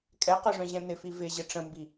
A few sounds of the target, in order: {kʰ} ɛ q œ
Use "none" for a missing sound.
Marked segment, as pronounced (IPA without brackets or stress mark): kʼ